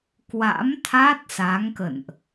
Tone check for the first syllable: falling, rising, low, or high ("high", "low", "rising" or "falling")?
rising